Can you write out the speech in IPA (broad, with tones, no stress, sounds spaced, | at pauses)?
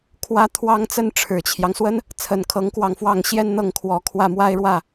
kʰ w ä˥ t̪ʰ w ɑ˥ ŋ t͡s ə˥ n ʈ͡ʂʰ ɻ̩˨˩ t͡ɕʰ j ɑ˦ ŋ s w ə˥ n | t͡sʰ ə˨˩ n kʰ ɤ˧˥ ŋ k w ɑ˧ ŋ f w ɑ˥˩ ŋ ɕ j ɛ˥ n n̪ ɤ˥˩ ŋ kʰ w ɔ˨˩ kʰ w ä˥˩ m w a˥ ɪ̯ ɻ w ä˥˩